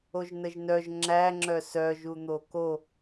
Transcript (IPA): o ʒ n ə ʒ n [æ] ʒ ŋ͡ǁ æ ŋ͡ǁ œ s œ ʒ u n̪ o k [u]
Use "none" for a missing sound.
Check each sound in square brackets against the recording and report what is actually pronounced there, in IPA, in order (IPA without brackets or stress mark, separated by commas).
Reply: œ, o